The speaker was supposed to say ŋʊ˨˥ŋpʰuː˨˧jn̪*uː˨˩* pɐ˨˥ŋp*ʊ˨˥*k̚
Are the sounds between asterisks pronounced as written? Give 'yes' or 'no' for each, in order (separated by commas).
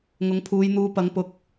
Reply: no, yes